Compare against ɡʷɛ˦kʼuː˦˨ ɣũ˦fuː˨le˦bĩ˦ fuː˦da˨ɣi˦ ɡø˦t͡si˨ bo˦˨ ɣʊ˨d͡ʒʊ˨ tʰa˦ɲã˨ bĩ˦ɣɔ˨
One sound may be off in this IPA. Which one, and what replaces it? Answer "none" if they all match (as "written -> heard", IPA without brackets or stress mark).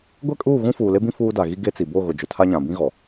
ø˦ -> e˦